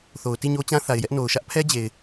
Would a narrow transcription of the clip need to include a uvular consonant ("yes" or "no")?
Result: no